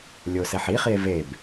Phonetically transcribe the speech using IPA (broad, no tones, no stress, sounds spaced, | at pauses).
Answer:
lʲ o s ɛ ħ i χ i e̯ v e b